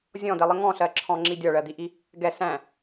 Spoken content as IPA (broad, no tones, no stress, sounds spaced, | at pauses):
zʲ ɔ̃ d ɛ lˠ ə ŋ ɔ̃ ɬ ɜ ǁʰ ɔ̃ ŋ͡ǁ i dʲ ɒ ɭ ɜ d̪ i ʔ i | ɡ ɛ s æ̃